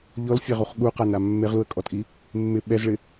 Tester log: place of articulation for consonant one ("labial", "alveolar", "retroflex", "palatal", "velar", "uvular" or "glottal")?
palatal